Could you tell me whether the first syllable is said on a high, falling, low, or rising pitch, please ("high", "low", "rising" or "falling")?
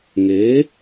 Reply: rising